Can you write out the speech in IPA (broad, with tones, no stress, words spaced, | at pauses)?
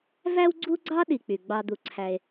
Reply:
væ˥wɡ͡ǀu˥ɡ͡ǀɑ˥ ɗi˨k͡py˩ ɡ͡bɑ˨ d̪u˨ǀʰæ˨e̯